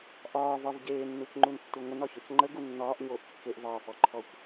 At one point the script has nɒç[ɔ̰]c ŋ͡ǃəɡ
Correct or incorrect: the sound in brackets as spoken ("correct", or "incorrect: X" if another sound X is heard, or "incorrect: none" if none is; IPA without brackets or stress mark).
incorrect: ɔ